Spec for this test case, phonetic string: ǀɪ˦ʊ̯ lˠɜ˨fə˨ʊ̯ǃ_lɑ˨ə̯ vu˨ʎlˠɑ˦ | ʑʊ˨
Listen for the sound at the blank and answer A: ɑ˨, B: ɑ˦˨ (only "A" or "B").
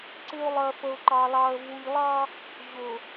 A